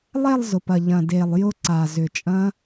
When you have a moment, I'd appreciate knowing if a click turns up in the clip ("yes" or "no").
yes